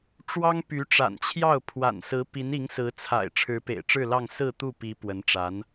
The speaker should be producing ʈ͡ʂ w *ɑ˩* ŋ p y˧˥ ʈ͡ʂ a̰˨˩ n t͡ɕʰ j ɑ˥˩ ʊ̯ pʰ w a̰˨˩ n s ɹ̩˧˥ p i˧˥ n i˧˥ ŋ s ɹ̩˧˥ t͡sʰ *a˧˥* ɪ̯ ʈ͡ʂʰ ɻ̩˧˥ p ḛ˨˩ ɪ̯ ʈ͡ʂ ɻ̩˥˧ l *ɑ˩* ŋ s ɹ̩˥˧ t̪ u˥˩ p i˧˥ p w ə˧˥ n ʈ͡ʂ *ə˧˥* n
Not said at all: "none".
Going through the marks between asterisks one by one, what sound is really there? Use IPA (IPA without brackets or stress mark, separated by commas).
ɑ˥, a̰˨˩, ɑ˥˧, a˧˥